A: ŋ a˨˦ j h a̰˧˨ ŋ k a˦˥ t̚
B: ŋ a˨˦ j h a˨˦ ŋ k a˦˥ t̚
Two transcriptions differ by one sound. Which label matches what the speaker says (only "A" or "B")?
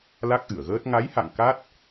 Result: A